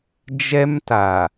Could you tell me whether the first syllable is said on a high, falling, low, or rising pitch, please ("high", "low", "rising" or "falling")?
high